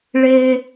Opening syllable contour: low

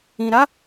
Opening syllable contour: low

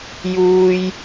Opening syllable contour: low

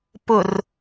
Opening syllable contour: low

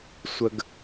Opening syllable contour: low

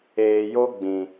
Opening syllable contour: low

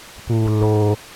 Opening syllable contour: low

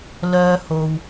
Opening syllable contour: high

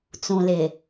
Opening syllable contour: low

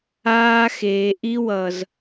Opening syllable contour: high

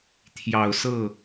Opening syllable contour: low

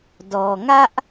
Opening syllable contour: low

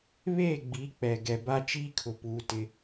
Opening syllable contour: falling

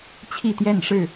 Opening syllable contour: falling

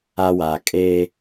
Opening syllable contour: high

